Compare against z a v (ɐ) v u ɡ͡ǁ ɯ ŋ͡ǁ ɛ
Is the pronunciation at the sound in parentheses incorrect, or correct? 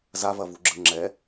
correct